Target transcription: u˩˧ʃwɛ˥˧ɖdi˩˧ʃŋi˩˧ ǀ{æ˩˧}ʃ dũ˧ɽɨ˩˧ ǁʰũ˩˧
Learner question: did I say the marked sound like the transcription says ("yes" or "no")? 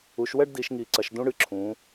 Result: no